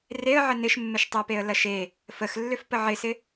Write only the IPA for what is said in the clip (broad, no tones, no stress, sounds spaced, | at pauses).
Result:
r e ə̯ ʕ ə n ɪ ʃ mː ɪ ʃ tˤ ɪ ə̯ p e ə̯ l ɐ ʃ e | f ə x lː ʏ f p ə ʕ ɪ s ɪ